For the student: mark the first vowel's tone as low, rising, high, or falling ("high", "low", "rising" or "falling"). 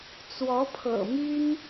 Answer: rising